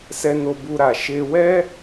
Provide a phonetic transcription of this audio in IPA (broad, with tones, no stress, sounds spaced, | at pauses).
s ɛ˧ n o˧ b u˧ ɾ a˨ ʃ e˧ w ɛ˦